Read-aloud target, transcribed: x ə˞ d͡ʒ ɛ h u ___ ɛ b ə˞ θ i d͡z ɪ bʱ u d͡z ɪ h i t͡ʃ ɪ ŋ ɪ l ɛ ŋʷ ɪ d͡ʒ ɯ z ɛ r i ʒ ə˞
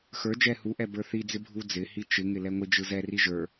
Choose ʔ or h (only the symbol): ʔ